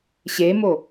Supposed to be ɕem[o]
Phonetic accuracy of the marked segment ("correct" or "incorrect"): correct